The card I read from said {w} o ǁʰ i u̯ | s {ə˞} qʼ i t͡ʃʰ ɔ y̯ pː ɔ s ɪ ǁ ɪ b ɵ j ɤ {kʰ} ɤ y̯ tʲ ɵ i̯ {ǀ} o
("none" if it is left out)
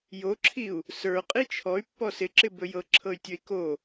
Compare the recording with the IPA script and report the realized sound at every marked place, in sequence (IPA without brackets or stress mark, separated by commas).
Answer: j, ə˞, ǁʰ, k